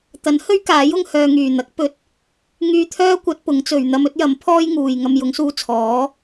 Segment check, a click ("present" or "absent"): absent